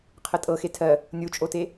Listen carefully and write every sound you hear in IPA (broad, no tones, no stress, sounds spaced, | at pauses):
qʰ ə tʼ ɤ x e tʰ ɜ | nʲ u t͡ʃʼ o t e